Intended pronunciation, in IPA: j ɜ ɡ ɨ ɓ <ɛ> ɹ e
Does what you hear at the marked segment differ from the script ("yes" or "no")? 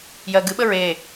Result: yes